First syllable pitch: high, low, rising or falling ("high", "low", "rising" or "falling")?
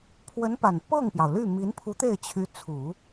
rising